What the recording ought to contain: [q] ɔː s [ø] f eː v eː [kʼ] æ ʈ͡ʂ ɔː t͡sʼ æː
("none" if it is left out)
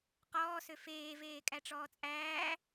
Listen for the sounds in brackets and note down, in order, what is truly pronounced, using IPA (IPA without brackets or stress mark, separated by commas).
q, ø, kʼ